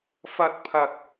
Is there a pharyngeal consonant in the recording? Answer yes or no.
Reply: no